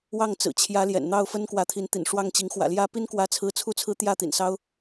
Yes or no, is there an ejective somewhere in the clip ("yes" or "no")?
no